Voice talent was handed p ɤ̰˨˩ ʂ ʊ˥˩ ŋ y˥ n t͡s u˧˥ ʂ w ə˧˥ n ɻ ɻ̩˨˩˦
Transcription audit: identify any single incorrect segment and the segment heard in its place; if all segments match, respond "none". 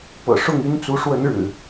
none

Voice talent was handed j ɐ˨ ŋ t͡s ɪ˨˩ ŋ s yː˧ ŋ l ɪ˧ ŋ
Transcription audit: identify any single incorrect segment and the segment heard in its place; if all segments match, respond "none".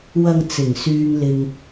j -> w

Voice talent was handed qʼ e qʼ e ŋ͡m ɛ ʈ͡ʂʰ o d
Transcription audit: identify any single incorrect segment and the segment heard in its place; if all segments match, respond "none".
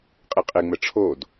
none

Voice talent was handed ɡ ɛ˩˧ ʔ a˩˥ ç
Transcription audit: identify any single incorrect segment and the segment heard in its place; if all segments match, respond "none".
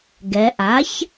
none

